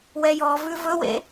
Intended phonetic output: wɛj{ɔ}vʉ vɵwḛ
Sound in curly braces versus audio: correct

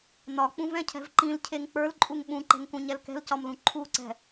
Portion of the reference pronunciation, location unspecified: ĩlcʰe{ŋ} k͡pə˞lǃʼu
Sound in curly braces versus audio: correct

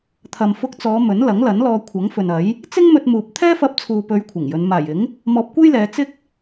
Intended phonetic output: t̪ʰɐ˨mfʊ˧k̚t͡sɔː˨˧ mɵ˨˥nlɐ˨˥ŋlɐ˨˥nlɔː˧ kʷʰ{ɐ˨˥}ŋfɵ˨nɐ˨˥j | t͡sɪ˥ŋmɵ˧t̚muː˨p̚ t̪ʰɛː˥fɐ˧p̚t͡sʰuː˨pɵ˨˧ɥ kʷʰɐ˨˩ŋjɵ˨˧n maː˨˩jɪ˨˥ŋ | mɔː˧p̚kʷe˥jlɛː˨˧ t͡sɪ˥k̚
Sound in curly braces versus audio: correct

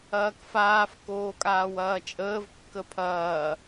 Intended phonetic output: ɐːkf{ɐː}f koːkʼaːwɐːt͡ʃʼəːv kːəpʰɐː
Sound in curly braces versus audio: incorrect: aː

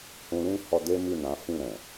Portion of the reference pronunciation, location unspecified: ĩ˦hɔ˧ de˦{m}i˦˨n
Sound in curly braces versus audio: correct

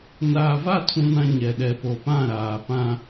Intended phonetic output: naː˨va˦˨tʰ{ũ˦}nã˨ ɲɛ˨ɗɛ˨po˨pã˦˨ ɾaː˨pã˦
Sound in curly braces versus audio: incorrect: ũ˨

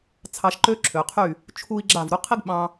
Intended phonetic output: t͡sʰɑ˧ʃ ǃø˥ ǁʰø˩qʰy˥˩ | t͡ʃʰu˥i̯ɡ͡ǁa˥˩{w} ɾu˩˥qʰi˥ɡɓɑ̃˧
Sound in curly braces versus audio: incorrect: v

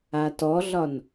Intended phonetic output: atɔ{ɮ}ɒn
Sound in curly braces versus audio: correct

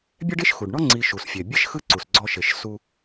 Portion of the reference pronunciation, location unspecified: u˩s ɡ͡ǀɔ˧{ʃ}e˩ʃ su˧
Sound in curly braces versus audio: correct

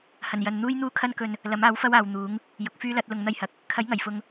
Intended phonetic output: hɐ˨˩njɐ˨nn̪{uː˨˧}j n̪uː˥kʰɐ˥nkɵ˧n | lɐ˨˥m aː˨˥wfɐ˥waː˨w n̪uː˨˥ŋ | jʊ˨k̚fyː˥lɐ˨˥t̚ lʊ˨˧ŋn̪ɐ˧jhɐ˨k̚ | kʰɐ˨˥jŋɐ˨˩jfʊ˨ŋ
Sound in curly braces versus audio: incorrect: uː˥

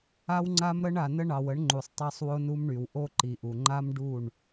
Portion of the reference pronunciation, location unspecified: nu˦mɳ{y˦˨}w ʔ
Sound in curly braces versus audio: incorrect: y˨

